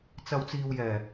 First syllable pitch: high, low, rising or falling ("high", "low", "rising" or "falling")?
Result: low